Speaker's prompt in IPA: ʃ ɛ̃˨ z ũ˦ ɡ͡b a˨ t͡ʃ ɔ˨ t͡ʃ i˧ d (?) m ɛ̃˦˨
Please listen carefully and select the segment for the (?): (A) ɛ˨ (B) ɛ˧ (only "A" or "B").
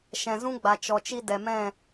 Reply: A